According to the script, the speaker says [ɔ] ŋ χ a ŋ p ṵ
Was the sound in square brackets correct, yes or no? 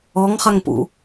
yes